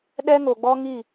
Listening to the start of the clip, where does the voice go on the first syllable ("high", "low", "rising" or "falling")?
high